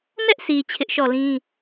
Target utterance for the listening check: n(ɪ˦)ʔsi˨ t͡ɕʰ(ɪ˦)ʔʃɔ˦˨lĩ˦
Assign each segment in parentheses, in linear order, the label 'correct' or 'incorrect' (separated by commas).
incorrect, correct